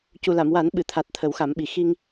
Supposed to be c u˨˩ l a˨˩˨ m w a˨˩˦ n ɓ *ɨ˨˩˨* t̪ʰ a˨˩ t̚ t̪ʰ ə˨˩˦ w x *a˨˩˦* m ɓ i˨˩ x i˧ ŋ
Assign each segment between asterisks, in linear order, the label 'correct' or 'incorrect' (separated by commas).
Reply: correct, correct